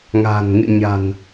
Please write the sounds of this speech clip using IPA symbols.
ŋ a̤˨˩ n ŋ ɨ̰˧˨ ɲ a̤˨˩ n

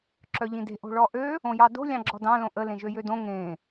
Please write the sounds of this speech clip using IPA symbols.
ǁ œ ʎ ĩ d e̤ ʔ o̤ ɭ ɔ ʔ ø | õ j ɑ d o̤ lʲ ɑ̃ ɡ͡ǁ ɔ d ɑ̃ l õ ʔ ə l ẽ ʒ ø j ø d õ ŋ ẽ

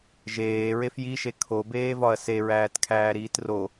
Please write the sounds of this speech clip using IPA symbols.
ʒ eː ɹ e f j i ʃ e kʰ o b eː v ɒ ɐ̯ s e ɹ æː t kʰ æː ɾ iː t r o

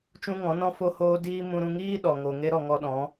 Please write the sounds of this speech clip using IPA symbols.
t͡ʃ ũ˦ ŋ ɔ̃˨˦ n ɔ̃˦ f o˦ h oː˦ d iː˦ m ũ˧ ɾ ũ˧ ŋ iː˦ ɗ ɔ˨ ŋ o˨ ŋ e˧ ɾ ɔ˨ ŋ ɔ˧ ɗ ɔ̃˨˦

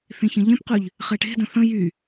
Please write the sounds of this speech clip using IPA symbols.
θ ĩ ç ə̃ ʎ ẽ p q y ʎ | χ ɛ ʈ e̤ d ə̃ θ ə̃ j y

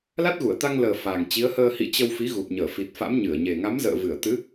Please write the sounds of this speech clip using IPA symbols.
l a˦˥ t̚ ɣ u˧˩ ə̯ t̪ a˧ ŋ l əː˨˩ f a˨˩ ŋ t͡ɕ i˨˦ ə̯ h əː˧ h ḭ˧˨ t͡ɕ ə˧ w f i˨˦ ɣ u˨˩ p̚ ɲ əː˧˩ f i˨˩ t̚ f a̰˧˥ m ɲ ɨ˧˩ ə̯ ɲ e˨˩ ŋ a˨˦ m z ə̰ː˧˨ v ɨ˧˩ ə̯ t̪ ɨ˨˦

